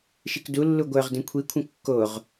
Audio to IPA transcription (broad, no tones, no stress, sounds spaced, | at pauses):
ʃ i k d u lː u ɡʷ œ ʁ d ẽ kʷʰ i kʷʰ ə̃ kː o ʁ